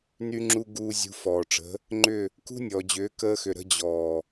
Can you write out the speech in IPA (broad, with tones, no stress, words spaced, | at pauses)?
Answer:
ny˧ŋ͡ǁu˧ ɡuː˧ zʲṳ˧fɔː˨ʈ͡ʂə̤˨˦ | ŋ͡ǃʏ˦˨ | kṳ˦nʲɔː˨d͡ʑʏː˨˦ kəː˧xʏ˨ɾə̤˧ d͡ʑɔː˨